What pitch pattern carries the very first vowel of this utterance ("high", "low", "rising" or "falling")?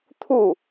falling